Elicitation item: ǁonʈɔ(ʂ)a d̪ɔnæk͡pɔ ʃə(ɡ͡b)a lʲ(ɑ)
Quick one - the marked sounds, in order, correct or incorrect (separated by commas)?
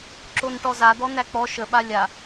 incorrect, incorrect, incorrect